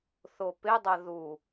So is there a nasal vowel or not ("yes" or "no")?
no